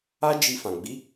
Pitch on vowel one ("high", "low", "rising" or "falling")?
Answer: high